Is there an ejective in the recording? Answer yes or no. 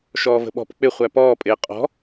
yes